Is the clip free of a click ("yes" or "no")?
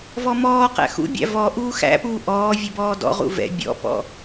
yes